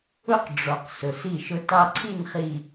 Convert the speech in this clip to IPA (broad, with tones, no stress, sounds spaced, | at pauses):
ʊ˦ q ɖ͡ʐ ɔ˨ q s ʊ˨ s i˦˨ ʃ ʊ˦ t ɑ˦ ǀʰ i˦˨ n χ i˨